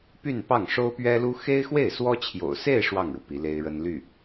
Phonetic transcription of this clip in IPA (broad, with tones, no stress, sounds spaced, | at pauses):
p y˥˧ n p ɑ˥˩ ŋ ʂ o˥ ʊ̯ p ɥ ɛ˥ l u˥ x e˥ ɪ̯ x w e˥˩ ɪ̯ s w ɔ˥ t͡ɕʰ j o̰˨˩ ʊ̯ s e˥˧ ɪ̯ ʂ w ɑ˥˩ ŋ ɻ u˩ p i˧˥ l e˥ ɪ̯ ɻ ə˥ n l y˥˩